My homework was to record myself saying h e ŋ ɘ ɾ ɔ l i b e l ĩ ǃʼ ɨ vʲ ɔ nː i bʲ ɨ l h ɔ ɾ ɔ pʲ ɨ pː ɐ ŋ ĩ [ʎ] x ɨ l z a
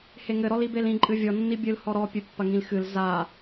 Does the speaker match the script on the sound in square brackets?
no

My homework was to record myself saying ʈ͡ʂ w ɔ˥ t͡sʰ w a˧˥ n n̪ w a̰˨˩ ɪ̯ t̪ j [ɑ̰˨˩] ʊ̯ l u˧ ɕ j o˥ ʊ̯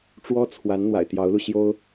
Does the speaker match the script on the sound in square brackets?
no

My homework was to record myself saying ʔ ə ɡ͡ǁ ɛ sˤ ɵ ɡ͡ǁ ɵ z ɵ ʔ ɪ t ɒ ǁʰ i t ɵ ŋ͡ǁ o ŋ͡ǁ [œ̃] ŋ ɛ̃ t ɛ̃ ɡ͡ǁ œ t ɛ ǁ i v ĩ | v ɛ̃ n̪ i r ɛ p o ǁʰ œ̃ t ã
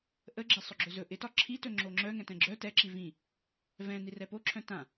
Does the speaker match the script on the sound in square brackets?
no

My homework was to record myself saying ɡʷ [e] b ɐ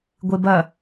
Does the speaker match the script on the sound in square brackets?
yes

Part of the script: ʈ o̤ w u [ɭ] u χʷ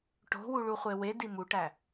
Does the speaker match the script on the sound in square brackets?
yes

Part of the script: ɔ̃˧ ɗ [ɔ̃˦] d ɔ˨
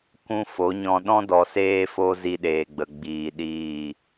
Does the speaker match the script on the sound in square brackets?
yes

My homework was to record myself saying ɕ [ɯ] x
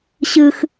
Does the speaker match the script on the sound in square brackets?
yes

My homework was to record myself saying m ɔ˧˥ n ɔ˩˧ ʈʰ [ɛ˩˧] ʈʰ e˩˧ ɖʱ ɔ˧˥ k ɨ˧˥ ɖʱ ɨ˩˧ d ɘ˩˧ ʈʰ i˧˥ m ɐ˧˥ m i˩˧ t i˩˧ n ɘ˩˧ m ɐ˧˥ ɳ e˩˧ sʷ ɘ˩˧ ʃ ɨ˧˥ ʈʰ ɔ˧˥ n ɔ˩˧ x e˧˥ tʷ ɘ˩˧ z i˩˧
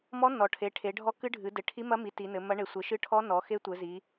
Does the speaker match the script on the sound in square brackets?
no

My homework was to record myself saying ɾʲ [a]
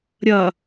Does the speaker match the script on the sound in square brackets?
no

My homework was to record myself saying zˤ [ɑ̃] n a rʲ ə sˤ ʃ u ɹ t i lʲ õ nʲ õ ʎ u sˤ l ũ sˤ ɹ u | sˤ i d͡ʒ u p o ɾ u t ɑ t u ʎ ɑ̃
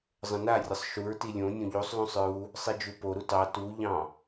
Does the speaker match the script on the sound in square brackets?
no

